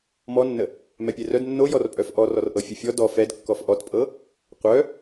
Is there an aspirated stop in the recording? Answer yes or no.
no